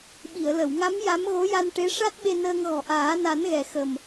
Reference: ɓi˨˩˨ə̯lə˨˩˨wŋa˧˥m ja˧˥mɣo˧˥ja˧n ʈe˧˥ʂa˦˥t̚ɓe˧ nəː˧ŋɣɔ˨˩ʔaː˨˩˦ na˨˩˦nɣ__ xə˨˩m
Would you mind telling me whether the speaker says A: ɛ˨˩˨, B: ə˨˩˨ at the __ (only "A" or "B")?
A